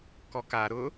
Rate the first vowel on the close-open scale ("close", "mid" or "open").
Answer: mid